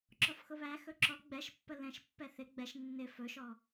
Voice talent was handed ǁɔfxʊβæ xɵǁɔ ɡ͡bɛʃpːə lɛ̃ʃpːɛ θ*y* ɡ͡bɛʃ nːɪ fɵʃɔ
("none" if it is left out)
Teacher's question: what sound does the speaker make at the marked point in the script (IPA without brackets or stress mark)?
ɪ